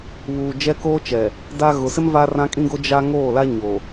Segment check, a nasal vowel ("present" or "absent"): present